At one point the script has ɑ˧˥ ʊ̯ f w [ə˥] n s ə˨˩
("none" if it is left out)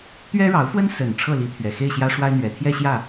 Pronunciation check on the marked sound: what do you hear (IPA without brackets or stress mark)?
ə˥